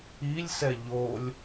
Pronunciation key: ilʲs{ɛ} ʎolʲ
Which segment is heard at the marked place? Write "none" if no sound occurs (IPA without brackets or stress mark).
ɛ